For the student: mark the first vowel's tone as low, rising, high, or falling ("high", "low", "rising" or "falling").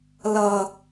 low